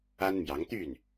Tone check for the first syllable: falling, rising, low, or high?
high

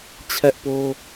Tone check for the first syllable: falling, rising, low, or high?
high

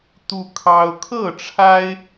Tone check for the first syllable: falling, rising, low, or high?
high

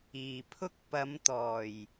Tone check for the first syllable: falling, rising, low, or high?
low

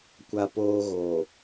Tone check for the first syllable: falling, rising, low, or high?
high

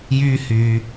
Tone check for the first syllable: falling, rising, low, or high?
high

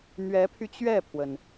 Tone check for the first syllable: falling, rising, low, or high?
rising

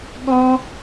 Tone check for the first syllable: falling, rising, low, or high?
high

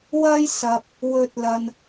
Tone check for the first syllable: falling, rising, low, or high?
high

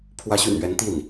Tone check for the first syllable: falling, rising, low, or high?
rising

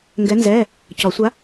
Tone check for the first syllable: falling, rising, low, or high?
rising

